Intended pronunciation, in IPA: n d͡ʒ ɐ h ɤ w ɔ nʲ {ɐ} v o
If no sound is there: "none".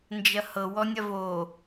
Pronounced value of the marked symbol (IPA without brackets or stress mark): ɐ